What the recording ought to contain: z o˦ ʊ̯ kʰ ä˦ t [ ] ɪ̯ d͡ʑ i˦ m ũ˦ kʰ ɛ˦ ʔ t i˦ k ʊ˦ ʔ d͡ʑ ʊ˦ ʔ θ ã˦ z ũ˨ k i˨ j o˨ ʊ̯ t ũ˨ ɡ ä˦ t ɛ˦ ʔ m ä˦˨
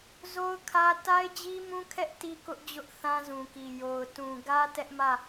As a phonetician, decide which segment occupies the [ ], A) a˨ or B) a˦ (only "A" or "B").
B